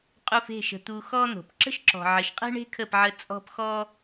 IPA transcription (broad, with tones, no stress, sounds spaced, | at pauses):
qʼ u˧ f e̤˦˨ ʃ ə̤˧ t̪ u˧ x ɔ˦ n̪ o̤˨ p ǁ ə̤˦ ʃ ǁ ɔ̤˨ ʕ ɘ˨ ʃ qʼ e̤˦ ɳ e̤˦ kʰ ə˦˨ p ʕ ə˧ t͡sʼ ɔ̤˦ p x ɔ˦